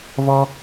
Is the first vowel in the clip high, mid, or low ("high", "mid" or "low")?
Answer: mid